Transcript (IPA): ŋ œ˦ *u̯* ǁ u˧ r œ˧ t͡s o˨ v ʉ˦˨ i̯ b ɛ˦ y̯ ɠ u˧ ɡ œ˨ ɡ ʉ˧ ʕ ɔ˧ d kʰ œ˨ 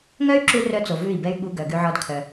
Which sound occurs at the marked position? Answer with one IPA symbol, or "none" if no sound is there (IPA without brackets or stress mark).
y̯